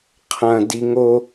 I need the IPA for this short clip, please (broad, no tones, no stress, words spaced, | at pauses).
qʰɐ̃ diŋo